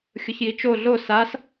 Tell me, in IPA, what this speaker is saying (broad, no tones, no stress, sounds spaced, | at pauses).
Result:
xʲ ʊ ç j i t͡ʃ o ɮ o s a s